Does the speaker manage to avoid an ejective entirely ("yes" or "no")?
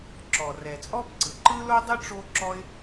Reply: no